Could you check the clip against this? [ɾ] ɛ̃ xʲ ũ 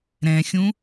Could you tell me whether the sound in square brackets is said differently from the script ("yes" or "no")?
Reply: no